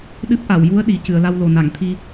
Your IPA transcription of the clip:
ɗ ɨ˦˥ p̚ ʔ a˨˩˨ w j u˧˥ ə̯ ɗ i˨˩ c ɨ˨˩˨ ə̯ l a˧ w l o˨˩ n a˨˩˨ ŋ t̪ʰ i˧

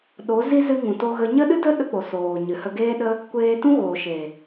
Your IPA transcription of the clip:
ɗ o˨˦ z i˦ z ɨ˧ ŋ ũ˨ t o˧ ɣ ə˧ ɲ ə˦ ɗ ɨ˦ d ə˦ ɗ ə˧ k͡p o˨ s oː˨ ɲ ɨ˨ h ə˧ ɡ eː˦ ɗ ə˦ | kʷ eː˧ t ũ˦ ɣ oː˨ ʃ e˨

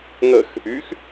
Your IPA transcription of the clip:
ŋ ə x | y x

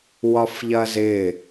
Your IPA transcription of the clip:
w ɒ f ʎ ɐ z ɪ

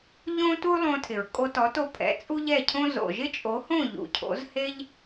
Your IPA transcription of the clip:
ʎ õ˥ t u˥ lˠ õ˧ tʰ ɪ˩ ɹ kʼ o˧ t ɔ˩˥ t o˧ pʰ ɛ̰˩˥ t͡sʼ u˥ ʎ ɛ˥˩ cʰ õ˥ z o̰˩ ʒ ɪ˥ t͡ʃʼ o˩˥ h õ˥˩ ʎ ṵ˩ cʰ o̰˩˥ z h e˥ ʎ

